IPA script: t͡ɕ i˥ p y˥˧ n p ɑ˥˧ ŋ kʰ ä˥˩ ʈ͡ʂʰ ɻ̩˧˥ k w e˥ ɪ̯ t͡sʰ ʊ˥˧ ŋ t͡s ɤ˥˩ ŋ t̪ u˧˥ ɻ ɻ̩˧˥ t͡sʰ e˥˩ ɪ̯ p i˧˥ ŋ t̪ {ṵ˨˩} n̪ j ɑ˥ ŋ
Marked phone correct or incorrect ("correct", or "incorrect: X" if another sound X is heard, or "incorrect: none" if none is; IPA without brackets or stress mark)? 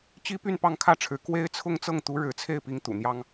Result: correct